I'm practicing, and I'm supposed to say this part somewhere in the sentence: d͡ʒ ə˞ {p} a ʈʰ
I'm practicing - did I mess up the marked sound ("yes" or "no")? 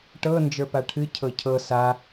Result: no